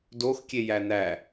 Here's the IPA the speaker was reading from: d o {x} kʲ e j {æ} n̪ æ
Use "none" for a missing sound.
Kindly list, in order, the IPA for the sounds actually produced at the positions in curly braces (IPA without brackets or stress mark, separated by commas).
x, æ